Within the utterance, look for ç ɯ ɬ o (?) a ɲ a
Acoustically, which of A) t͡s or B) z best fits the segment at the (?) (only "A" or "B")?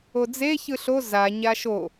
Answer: B